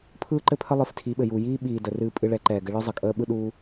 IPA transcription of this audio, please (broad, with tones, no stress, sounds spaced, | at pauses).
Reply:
pʰ ɯː˦ ǃ ɘ˦ pʰ ə˦ lˠ ɨ˨˦ f tʰ i˨˦ ɓ ɘ˨ j u˨ j iː˦ ɓ iː˨ d ə˨ r ɨː˧ pʼ ɨ˧ ɭ ɛ˨˦ ǃ ɛː˨ ɡ ɘ˧ ɭ ɯ˦ zˤ ə˨ kʼ əː˦ ɓ ɯ˦ ɗ uː˦